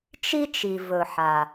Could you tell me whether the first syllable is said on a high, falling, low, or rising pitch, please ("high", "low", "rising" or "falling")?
high